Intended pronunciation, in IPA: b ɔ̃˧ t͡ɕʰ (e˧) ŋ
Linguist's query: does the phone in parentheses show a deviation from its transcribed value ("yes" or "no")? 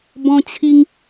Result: yes